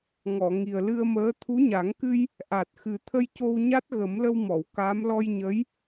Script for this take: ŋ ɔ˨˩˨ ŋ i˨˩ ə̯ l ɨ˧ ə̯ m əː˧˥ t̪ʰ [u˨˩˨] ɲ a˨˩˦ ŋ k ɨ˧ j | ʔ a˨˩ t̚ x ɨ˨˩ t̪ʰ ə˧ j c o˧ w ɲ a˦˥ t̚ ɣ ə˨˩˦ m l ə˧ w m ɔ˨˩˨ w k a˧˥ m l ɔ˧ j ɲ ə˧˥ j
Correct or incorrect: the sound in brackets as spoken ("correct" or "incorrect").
incorrect